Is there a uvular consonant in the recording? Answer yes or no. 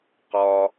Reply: yes